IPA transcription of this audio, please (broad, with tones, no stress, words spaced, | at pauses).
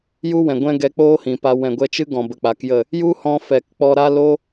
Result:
ju˦wɛ̃˨ɡʷɛ̃˦ ɡɛ˧ k͡poː˦hĩ˨pa˧ wɛ̃˨ɡʷɛ˧t͡ʃɨ˦ɡɔ̃˨ bə˧k͡pa˨˦kjə˦˨ | ju˦hɔ̃˧fɛ˨k k͡pɔ˧ɾa˦lo˦